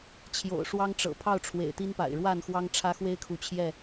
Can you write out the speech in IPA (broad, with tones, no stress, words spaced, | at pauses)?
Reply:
t͡ɕʰjo̰˨˩ʊ̯ʂwɑ˦ŋʈ͡ʂɤ̰˨˩ pʰɑ˥˨ʊ̯ ʈ͡ʂʰwḛ˨˩ɪ̯t̪i˦npa̰˨˩ɪ̯ ɻwa˥˨nxwɑ˦ŋ ʈ͡ʂʰä˦xwe˦ɪ̯kʰu˨˦ t͡ɕʰjɛ˥˨